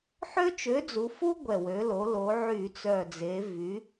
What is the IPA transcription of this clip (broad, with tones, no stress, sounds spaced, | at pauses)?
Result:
ħ ø˥ t͡ʃ ø˨˥ d͡z u˩˧ f u˥ ɡʷ ɛ˨˩ w ø˩˧ l o˩˧ l o˩˧ ʕ y˧˩˧ t͡s œ˨˩ d͡z e˩˧ v y˩˧